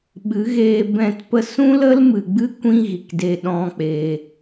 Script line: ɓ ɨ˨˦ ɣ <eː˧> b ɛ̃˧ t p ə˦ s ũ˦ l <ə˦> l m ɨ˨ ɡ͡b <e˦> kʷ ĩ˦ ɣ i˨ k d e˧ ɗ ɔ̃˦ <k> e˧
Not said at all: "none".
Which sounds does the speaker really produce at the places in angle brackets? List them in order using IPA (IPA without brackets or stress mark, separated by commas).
eː˧, ə˦, ɨ˦, k͡p